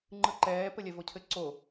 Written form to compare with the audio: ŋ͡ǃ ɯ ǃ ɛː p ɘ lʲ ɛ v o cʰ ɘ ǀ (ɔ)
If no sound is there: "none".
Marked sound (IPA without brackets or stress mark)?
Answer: o